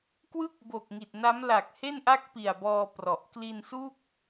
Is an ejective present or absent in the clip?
absent